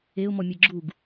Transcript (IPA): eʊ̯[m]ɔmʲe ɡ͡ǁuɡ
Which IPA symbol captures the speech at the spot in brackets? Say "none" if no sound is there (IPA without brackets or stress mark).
m